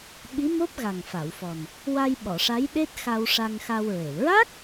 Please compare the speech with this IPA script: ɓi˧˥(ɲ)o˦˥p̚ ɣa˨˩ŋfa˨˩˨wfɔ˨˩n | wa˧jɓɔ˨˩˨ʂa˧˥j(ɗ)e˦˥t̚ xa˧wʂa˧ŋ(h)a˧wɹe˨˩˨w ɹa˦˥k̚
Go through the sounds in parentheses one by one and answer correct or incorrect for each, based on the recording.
incorrect: m, correct, incorrect: x

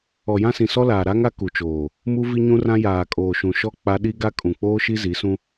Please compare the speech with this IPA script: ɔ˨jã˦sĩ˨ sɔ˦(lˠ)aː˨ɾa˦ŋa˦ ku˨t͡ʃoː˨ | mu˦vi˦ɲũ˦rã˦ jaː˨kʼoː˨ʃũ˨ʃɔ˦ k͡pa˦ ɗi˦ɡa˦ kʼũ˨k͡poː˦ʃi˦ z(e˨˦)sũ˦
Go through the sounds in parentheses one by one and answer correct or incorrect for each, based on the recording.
incorrect: l, incorrect: i˨˦

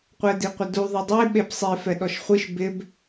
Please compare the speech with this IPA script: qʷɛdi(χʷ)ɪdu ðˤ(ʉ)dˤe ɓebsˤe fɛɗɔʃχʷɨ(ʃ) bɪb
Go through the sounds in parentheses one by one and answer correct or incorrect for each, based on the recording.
incorrect: qʷ, incorrect: ɨ, correct

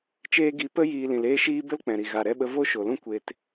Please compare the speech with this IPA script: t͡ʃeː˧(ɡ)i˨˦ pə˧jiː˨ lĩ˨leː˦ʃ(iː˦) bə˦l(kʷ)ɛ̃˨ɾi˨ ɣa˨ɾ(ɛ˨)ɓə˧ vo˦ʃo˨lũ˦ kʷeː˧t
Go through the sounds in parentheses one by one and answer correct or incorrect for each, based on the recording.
correct, correct, incorrect: k͡p, incorrect: ɛ˧

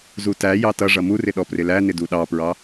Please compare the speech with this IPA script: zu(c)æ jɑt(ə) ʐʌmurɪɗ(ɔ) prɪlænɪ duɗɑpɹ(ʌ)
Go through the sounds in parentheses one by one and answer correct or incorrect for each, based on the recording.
incorrect: t, incorrect: ʌ, correct, incorrect: ɑ

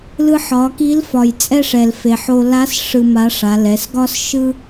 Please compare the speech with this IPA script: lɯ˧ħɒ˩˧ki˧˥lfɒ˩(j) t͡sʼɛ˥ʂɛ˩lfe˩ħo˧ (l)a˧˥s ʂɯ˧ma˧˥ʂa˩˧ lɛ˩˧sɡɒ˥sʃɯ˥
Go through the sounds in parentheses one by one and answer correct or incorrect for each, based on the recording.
correct, correct

